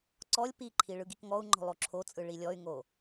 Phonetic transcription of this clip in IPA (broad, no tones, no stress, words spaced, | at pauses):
ǀɔlʲ piǃʰi ɭɯɡikŋɔu̯ŋ͡ǃɔ̤ lˠoǁʰot͡sʼɯ ɭilʲɔy̯ŋo